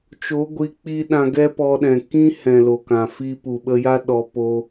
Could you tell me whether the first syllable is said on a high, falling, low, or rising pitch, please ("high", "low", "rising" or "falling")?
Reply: rising